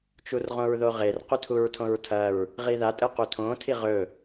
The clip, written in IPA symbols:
t͡ʃ u r ʁ õ ɹ ð o ʁ e r q ʉ tʰ u ɹ tʰ õ ɹ tʰ ɐ ɹ | ʁ i ð a tʼ ɨ q u tʰ õ tʰ i ʁ ɵ

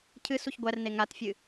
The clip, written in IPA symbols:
cʰ ɨ s u ç ɡʷ æ r n e ŋ a t fʲ ɨ

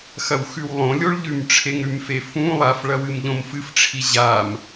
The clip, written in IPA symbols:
x ɐ w x ʉ w lˠ õ lʲ o ɭ ʎ ʉ m ʈ͡ʂʰ e ŋ ɾ ʉ m f e f ũ lˠ a f ɭ ɐ w ɨ m ʎ õ m f ɨ f ʈ͡ʂʰ i ʑ a m

